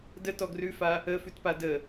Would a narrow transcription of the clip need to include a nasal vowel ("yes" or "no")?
no